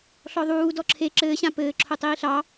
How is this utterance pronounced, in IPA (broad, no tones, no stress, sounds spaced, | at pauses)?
ɬ ɔ ðˤ uː d ɔ ǁʰ e ǁ ɘː ɕ ã p ɘː ǁʰ o tˤ iː ɬ ɑ